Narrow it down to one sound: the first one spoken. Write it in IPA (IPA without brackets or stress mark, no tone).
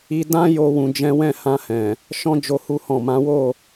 i